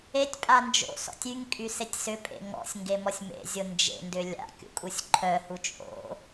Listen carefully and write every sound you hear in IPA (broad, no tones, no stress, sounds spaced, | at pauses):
e tʲ pʼ a n d͡ʒ o̰ s ɔ̰ tʲ y ŋ kʼ y s e tʲ s ʏ pʼ ḛ ŋ ɔ̰ sʲ ŋ ɡ e m ɔ sʲ m ḛ zʲ o n d͡ʒ ḛ n d ʏ lʲ a̰ kʲ ṵ kʼ u sʲ ǃʰ œ h u t͡ʃʼ o̰